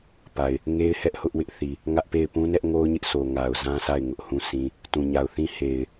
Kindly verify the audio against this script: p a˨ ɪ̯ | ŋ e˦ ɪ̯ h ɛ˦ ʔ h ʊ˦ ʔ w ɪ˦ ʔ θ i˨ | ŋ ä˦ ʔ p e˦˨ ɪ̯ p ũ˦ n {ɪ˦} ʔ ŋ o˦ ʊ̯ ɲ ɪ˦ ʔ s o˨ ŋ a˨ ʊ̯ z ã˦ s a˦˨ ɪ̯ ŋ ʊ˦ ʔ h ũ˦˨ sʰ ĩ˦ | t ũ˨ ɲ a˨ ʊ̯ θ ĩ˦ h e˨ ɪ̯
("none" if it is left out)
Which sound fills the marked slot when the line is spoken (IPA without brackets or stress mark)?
ɛ˦